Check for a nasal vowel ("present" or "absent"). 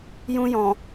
present